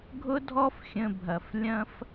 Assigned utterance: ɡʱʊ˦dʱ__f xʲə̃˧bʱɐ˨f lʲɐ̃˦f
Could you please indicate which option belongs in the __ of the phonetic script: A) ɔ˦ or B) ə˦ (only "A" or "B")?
A